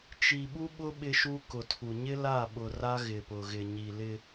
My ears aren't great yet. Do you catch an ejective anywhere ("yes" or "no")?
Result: no